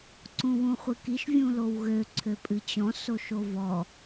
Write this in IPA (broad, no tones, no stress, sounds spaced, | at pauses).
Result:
ǀ ũ w ũ χʷ ɨ k i ʃ vʲ ũ l o w ɣ ø ǀʰ ø pʼ ɨ t͡ɕ ɔ̃ s o ʃ o v ɔ